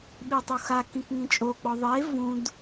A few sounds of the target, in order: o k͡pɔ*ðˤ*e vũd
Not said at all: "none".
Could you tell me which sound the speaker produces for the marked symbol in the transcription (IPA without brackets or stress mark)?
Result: ðˤ